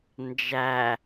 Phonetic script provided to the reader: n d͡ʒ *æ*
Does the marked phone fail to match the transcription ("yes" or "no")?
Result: no